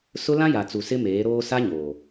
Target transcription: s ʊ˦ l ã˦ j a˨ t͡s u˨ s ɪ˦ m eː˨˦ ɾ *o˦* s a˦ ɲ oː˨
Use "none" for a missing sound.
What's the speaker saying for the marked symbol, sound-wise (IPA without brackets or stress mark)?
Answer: oː˦